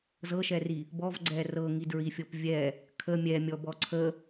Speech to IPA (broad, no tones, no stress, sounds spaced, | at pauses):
z ɤ ʃ ɛ r i | b ɔ v ɡ͡ǀ ɛ r ɤ ŋ i d ɹ i fʲ ɤ p vʲ ɛ | kʰ ə mʲ ɛ mʲ ɔ b ɔ ǀʰ ə